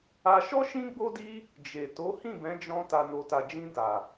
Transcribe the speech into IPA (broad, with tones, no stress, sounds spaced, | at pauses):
a˧ ʃ ɔ˦ ʃ ĩ˦ ɡ͡b o˦ d i˦ | d͡ʒ e˨ t o˨˦ h ĩ˦˨ b ɛ̃˨˦ d͡ʒ ɔ̃˧ t a˨ n o˨ t a˨ d͡ʒ ĩ˧ d a˨